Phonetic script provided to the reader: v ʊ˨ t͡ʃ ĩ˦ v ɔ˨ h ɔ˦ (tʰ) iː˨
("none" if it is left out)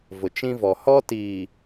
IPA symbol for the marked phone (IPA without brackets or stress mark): t